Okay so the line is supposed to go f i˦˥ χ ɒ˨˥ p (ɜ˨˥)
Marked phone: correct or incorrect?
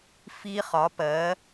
correct